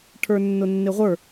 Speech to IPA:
ʈʰ ə˞ nː ʊ nː ɪ ʁʷ ə˞

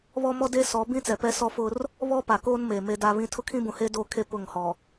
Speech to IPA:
β ɔ˦ m ɔ˦ d e˦ s ɔ˨˦ b ĩ˦ t͡s ɛ˨ p ɛ˦ s ɔ˦ f ʊ˦ r | β ɔ˦ p a˨ k oː˦ n m eː˨ m e˦ d a˦ β ĩ˦ tʰ ʊ˦ kʰ ĩ˦ b ũ˨ h eː˦ d oː˦ kʰ e˦ p ʊ˦˨ ŋ h ɔ˨

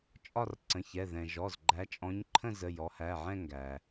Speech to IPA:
t͡ʃʼ ɒ˥˧ r ǀ ə̃˩˧˩ ç ɛ˩˧˩ ð ɛ̃˩ ʒ ɔ˩˧˩ z ɡ͡ǃ æ˨˦ t͡ʃʼ ɔ̃˨˦ ɲ ǃʰ ə̃˥˧ z ə˩˧˩ j ɔ˨˦ h æ˩˧˩ ʕ ɛ̃˥˧ ŋ ɡ æ˩

